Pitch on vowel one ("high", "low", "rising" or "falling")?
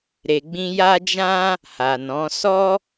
low